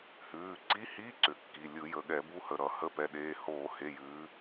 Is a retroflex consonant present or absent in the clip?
absent